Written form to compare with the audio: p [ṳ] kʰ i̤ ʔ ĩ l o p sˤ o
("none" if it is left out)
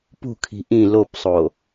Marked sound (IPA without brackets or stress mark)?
ṳ